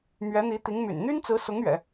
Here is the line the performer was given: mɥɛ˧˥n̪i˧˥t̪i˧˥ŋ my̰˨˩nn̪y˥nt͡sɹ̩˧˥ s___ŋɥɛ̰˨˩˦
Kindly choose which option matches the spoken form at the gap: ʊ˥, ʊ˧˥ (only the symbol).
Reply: ʊ˧˥